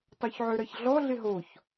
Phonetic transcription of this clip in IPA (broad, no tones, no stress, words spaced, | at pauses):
tˤoçʕøɾɐç ɮɔɮɪ ɦoç